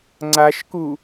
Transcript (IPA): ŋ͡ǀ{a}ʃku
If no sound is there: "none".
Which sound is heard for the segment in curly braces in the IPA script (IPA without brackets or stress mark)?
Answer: a